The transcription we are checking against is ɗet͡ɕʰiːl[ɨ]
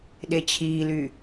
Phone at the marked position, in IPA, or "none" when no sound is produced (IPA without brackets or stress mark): y